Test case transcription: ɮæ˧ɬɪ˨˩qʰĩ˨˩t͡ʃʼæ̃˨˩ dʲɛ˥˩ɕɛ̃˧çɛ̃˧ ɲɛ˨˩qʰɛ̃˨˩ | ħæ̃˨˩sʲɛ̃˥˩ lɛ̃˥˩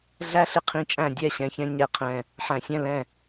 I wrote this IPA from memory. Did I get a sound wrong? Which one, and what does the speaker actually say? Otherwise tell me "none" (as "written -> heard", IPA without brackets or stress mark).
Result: none